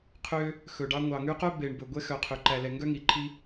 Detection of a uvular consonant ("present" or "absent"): present